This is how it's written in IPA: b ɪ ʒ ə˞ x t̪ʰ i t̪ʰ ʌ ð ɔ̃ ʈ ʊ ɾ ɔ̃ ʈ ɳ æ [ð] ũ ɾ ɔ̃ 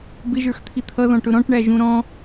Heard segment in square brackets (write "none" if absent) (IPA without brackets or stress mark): ʒ